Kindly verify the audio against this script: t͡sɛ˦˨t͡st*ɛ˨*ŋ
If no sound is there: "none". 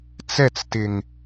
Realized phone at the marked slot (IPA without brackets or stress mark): ɪ˨